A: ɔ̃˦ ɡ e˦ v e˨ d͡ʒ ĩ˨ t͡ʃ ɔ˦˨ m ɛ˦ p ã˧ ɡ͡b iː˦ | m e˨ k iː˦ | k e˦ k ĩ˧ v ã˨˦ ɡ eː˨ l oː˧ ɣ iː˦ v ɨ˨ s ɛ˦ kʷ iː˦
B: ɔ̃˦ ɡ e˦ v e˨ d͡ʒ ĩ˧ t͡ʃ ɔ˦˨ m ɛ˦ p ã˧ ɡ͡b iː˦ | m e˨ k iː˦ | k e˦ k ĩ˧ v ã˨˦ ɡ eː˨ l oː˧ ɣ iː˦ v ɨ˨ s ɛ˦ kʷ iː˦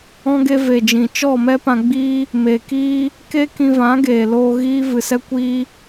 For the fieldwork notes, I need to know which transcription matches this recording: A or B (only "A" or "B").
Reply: A